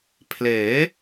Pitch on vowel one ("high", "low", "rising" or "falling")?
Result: rising